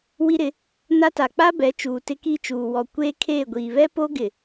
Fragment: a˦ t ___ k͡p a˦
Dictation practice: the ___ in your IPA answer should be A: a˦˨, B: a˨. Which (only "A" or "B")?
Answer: B